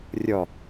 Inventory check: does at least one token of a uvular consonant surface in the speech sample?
no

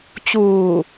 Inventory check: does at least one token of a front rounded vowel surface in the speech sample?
no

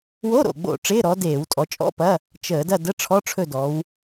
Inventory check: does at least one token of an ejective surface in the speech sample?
yes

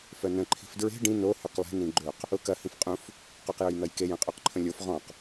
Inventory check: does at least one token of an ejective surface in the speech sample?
yes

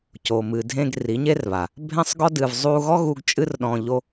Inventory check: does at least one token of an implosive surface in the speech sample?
yes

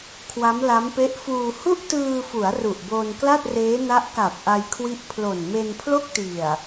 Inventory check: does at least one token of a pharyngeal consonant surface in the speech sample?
no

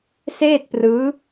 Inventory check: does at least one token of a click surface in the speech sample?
no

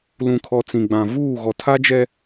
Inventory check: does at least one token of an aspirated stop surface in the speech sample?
yes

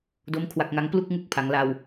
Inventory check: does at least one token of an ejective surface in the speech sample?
no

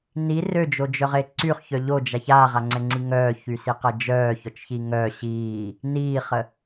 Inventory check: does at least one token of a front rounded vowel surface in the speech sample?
yes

